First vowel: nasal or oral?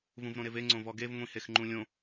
nasal